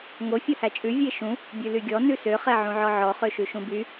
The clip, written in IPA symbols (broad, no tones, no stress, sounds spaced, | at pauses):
ŋ o fʲ o h æ t͡ʃʼ ʉ vʲ e ʃ ũ | bʲ ʉ l y ɡʲ ɔ n ʉ s ø χ ɛ ʕ ũ ʕ ɔ ʕ ɔ χ ø ʃ ʉ ʃ ũ b y